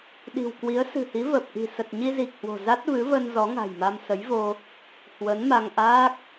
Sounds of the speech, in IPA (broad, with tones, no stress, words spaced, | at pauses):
ɗi̤˨˩wkwi˨˦ə̯ sɨ̤˨˩hi˨˦və˨˩p̚ʔi̤˨˩ sə˨˩t̚ɲi˧zi˨˩k̚ hwo̤˨˩za˦˥t̚ vɨ˨˦və˧n zɔ˨˦ŋa̤˨˩jma˧m sə˨˦jvo˧ | hwə˨˦n ma˧ŋʔaː˦˥k̚